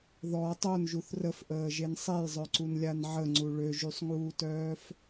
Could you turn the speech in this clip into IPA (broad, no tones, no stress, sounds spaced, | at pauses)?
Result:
ð ɔ tˤ o n ʒ u θ r ə f ʔ əː ʒ e n sˤ e j zˤ œ ǀ u n lʲ a n ʕ ə ŋ͡ǀ u ɭ ø ʒ y sˤ ŋ uː t œː f